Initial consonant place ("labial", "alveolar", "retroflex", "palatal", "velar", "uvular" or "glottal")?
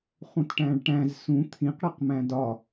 uvular